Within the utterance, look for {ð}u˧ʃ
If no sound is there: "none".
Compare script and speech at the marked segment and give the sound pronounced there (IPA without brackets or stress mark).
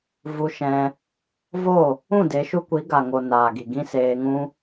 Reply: v